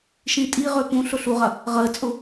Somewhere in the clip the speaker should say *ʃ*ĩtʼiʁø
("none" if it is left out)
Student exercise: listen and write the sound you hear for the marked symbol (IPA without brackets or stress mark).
ʃ